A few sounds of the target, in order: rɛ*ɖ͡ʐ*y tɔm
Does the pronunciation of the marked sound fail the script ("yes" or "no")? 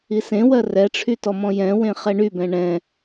yes